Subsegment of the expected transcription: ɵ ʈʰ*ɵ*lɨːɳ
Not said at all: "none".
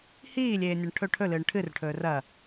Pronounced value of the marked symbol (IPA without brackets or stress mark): ɵ